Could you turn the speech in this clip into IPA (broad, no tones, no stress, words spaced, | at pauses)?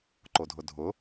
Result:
ǃodʱʊdʱʊ